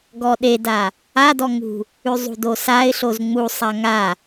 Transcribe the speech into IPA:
ɡ ɔ ɗ e d a | a d ɔ ŋ ṳ | ʉ zˤ ṳ d o s a ɪ̯ ɬ o z ŋ͡m u sˤ a ŋ a

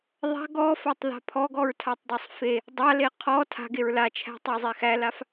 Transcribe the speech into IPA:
ðˤ a̤ ɡ ɔ f a tˤ ð a̤ pʰ ɔ ɡ ɔ ɹ tʰ a tˤ dˤ æ sˤ f e | dˤ a l e qʰ ɔ tʰ a̤ ɡ e ɹ l a t͡ʃʰ æ̤ tˤ æ zˤ e x æ l a f

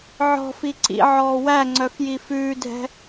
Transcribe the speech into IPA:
ʕ ɔ̤ f i ǀ ḭ ʕ ɔː w æ ŋ͡ǀ œ f j i f ʉː dʱ ɛ̤

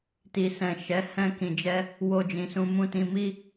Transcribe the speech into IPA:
t i˨ s ɛ̃˨ ʃ ɛ˨˦ h ɛ̃˧ k ĩ˨ d͡ʒ ɛ˧ | w o˧ d͡ʒ ĩ˨ s ũ˧ m ũ˧ t ĩ˧ m i˦

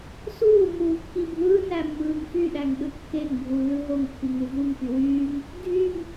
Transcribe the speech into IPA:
s uː m uː kː i bʱ ɯː n æ mː ɯː ŋ f y ɗ æ ŋ ɗ ɯ kː e ŋ bʱ u lː ɯ ɦ o ŋ pː i ŋ u v u ŋ p y w yː ŋ | dʱ y ŋ

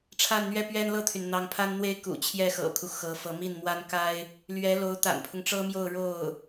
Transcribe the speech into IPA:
ʈ͡ʂʰ a˥˧ n n̪ ɥ ɛ˥˩ p ɥ ɛ˥ n l ɤ˥˩ t̪ʰ y˩ n n̪ ɑ˧˥ ŋ pʰ a˥ n n̪ w e˥ ɪ̯ k ṵ˨˩ t͡ɕʰ j ɛ˥ x ɤ̰˨˩ kʰ u˦ x ɤ˧˥ f ɤ˧˥ m i˥˩ n m w a˥ n k a˥ ɪ̯ | l ɥ ɛ˧˥ l o˧˥ ʊ̯ t̪ a̰˨˩ n pʰ ʊ˦ ŋ ʈ͡ʂ ɤ˥ m j o˥˧ ʊ̯ ɻ o˥˩ ʊ̯

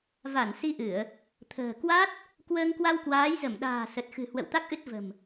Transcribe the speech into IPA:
v a˧˩ n s i˧ ʔ ɨ˧˩˨ ə̯ | t̪ʰ ə̤ː˨˩ k w a˦˥ t̚ | k w əː˧ ŋ k w a˧ w k w aː˨˦ j z ə˧˩ m ɗ a̤ː˨˩ s ə˨˩ t̚ x ɨ̤˨˩ h w ə̰˧˨ w t̪ a˦˥ k̚ ʔ ɨ˦˥ t̚ v ə̤˨˩ m

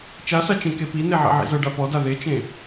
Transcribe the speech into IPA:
t͡ʃ a s a t͡ʃ ẽ k e p i n̪ e ʕ ɛ̰ ʕ ḭ z ɤ ɖ a p ɔ d a ð e t͡ʃ ẽ

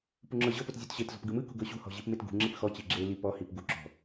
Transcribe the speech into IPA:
p u ŋ͡ǁ ɤ ʑ ɤ p o t zʲ o t ɕ e t z ɔ̤ p ɡ ɯ m ɯ k ṳ ɡ ɤ ɕ ṳ h ɔ̤ ʑ i p m e t ɡ ṳ ŋ͡ǁ i p x ɔ t͡ɕ i ɡ͡ǁ e l i p ɔ h i p ɡ u ǁ ɔ̤

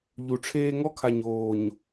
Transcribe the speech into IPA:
ʎ u˨ ʈ͡ʂʰ eː˦ ŋ ɔ˦ kʰ a˨ ɲ oː˨ ɲ

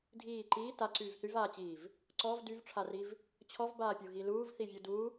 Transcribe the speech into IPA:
dʱ iː ǃ iː t a ǀ yː v θ y v aː t͡ɕ iː v | ǀ ɔ v d y v ʈ͡ʂʰ a r i v | t͡ɕʰ ɔ v b aː pʲ u ɣ i l uː v θ i vʲ u d u

